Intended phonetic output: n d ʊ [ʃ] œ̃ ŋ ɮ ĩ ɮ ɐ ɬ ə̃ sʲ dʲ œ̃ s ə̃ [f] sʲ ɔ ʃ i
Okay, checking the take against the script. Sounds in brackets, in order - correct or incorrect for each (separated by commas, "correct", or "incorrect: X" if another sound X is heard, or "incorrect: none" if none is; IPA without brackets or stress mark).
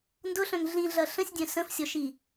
incorrect: ɬ, correct